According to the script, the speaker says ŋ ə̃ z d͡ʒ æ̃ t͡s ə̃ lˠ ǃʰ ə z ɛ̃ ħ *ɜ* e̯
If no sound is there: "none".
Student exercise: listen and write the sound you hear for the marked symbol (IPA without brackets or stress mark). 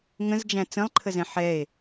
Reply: ɛ